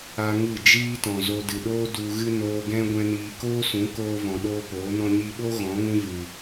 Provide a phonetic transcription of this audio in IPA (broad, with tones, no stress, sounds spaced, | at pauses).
a˦ ŋ ɨ˦˨ d͡ʒ iː˦ t ɔ̃˨ z o˧ d ɨ˨ ɗ oː˦ d u˧ ɣ ɨ˦ n oː˧ ɡ ɛ̃˦ ɡʷ ɛ̃˦ n iː˧ k oː˦ s ũ˨˦ k oː˧ v ɔ̃˨ ɗ oː˦ p oː˨˦ n ɔ̃˦ ɲ i˧ ɓ o˦ ɣ ɔ̃˨˦ ŋ ũ˦ v ɨ˨